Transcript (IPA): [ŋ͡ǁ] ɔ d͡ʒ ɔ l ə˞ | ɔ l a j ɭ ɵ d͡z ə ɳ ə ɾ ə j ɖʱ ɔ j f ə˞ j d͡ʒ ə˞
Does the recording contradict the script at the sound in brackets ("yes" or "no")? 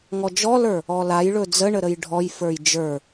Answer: yes